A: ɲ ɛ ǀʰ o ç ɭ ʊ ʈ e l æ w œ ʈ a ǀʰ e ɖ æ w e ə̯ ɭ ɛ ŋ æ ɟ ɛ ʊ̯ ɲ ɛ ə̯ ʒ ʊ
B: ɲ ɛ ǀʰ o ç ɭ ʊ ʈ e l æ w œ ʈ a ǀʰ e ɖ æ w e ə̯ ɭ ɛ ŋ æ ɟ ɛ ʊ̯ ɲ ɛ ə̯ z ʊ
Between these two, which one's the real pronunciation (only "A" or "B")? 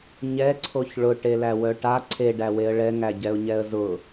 B